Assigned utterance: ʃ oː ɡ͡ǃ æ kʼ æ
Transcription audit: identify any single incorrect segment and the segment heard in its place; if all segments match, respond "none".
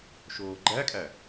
none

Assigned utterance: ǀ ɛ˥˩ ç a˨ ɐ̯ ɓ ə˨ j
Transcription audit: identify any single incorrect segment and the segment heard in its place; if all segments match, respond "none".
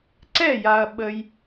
ç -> j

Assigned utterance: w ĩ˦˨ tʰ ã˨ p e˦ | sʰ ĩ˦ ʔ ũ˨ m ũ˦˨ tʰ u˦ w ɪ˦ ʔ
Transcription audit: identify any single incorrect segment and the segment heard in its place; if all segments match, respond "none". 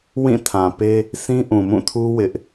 none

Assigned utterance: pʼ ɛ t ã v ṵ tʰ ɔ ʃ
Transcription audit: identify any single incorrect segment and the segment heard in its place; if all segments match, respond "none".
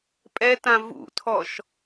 none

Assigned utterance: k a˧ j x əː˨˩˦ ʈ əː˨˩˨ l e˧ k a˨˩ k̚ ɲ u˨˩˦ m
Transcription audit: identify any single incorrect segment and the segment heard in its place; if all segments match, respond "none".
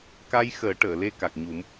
none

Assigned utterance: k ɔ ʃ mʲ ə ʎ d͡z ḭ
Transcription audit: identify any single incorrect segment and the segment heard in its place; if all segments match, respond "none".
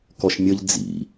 none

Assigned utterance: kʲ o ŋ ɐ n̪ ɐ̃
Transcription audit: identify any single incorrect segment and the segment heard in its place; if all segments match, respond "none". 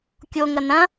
none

